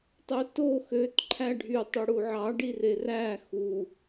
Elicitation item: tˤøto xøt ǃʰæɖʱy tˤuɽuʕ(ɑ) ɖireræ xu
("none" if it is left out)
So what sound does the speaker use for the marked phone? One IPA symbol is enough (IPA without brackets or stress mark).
ɑ